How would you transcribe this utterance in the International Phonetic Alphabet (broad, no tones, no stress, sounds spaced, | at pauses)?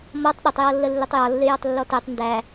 m ɔ tˤ ɗ ɪ tˤ j ɔ lː ə lː ɪ tˤ j ɒ lː ɪ j ɒ tˤ lː ɔ t ɛ tˤ n d æ